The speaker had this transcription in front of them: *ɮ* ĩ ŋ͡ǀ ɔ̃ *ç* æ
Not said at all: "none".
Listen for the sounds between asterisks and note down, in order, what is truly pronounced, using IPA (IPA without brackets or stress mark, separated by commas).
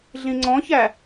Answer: ɮ, ç